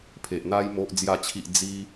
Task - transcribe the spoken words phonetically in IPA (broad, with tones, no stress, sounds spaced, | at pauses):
pʰ e˨ ʔ n̪ a˧ j m o˨ ʔ d͡z j a˨˩ t͡ɕʰ i˨ ʔ d͡z i˧